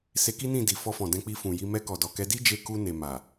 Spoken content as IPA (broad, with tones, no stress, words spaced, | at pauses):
se˧ki˦nĩ˦˨di˨ fɔ˧fɔ̃˨dɛ̃˧k͡pi˧ fũ˨ji˧ mɛ˧kɔ˨dɔ˨kɛ˧ di˦d͡ʒe˧ ku˧ ne˨ma˨